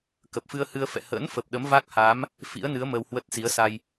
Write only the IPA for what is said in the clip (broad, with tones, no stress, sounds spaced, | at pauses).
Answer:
k ə˨˩ p̚ f ɨ˧ ə̯ h ɨ˧ ə̯ f ɛ̰˧˨ h ə̰˧˥ n f ə˨˩ p̚ ɗ ə˨˦ m v a˦˥ k̚ h aː˨˦ m | f ḭ˧˥ ə̯ n ɨ˨˦ ə̯ m ə˧ w h w ə˦˥ t̚ s i˨˦ ə̯ s a˧ j